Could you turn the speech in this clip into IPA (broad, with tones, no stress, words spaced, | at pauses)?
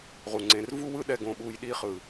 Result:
ʁu˨ŋ͡ǀẽ˧r vu˦wɯ˦ɗɛ˧ ɡõ˧ɓu˧j ɗi˦χɯ˨